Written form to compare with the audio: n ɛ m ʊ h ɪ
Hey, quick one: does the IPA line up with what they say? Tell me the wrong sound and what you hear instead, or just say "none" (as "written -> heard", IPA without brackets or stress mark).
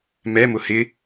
n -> m